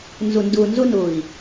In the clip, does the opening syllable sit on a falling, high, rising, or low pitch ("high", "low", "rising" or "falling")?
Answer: low